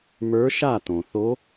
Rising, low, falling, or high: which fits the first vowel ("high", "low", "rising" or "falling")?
rising